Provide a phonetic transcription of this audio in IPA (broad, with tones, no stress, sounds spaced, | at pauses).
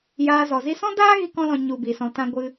j aː˧ z ɔ˨ z i˦ s ɔ̃˦ d aː˦ ɣ i˦ k ɔ̃˦ l ɔ̃˧ ɲ u˧ b i˨ s ɔ̃˧ t ã˦ ɡʷ ɨ˦